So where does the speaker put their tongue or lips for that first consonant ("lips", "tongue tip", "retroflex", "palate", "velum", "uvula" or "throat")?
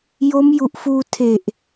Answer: palate